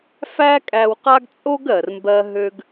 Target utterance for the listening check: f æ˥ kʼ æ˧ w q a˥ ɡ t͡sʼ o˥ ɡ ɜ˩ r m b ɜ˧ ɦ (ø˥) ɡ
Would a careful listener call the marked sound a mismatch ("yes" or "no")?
yes